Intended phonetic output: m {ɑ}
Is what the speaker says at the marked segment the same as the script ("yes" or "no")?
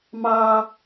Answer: yes